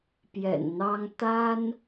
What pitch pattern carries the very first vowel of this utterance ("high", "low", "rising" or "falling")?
low